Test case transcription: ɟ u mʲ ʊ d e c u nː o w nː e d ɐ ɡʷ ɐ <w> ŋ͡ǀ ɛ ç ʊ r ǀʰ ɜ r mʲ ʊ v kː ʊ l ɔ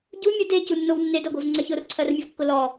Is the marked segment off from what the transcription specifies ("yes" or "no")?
yes